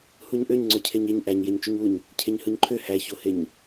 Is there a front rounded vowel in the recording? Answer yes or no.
yes